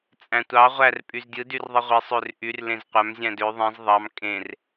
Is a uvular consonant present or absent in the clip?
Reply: present